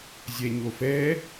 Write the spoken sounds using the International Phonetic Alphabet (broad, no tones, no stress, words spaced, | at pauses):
zʲɛɲofɛ